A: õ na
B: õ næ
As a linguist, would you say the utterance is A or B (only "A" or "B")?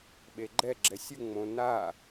A